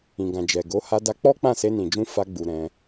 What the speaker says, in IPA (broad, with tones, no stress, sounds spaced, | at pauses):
ĩ˨ ɡ ã˨ d͡ʒ ɛ˨ ɡ o˨˦ h a˧ d a˧ k͡p ɔ˦ k͡p ã˦˨ s e˧ n ĩ˨ d͡ʒ ũ˧ f a˧ ɡ͡b u˨ ɾ ɛ̃˧